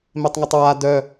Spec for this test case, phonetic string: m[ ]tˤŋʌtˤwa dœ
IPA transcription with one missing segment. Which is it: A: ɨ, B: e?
B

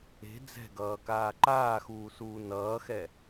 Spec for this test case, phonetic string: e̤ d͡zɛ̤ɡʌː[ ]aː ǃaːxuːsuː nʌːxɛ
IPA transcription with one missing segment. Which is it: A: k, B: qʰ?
A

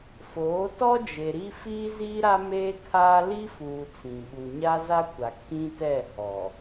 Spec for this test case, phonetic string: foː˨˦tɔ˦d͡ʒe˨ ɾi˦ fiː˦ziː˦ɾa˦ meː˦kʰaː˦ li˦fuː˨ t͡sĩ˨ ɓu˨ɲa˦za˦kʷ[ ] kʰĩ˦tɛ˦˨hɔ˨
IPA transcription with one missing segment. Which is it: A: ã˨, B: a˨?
B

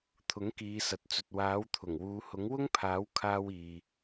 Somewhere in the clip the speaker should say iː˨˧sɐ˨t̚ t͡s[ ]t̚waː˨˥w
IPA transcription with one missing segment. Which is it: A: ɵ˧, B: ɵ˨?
B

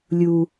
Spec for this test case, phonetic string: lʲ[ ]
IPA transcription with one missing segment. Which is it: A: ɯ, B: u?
B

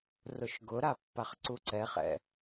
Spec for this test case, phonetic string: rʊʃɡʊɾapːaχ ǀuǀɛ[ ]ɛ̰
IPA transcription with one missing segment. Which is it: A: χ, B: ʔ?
A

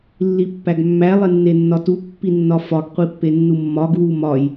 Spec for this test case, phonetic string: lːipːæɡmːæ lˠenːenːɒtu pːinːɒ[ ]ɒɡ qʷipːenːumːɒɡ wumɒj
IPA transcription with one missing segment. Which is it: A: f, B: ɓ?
A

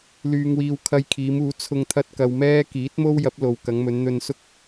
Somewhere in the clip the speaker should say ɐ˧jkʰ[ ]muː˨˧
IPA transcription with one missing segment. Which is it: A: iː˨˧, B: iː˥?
A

